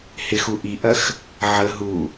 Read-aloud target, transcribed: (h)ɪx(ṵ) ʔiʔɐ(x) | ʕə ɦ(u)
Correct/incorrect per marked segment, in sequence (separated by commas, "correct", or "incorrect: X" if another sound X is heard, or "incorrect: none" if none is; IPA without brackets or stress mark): correct, incorrect: u, correct, correct